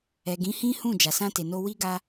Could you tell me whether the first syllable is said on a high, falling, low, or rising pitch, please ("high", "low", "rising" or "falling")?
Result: low